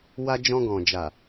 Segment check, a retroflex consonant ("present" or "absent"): absent